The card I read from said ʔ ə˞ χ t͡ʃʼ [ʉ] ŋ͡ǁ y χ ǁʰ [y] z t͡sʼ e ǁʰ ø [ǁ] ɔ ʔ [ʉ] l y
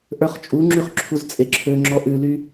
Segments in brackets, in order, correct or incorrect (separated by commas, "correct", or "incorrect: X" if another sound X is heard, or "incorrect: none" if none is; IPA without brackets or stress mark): incorrect: u, incorrect: u, incorrect: ŋ͡ǁ, correct